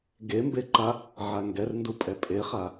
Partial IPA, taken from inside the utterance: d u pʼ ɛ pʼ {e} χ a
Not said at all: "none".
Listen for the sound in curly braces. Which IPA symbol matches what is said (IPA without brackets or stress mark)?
e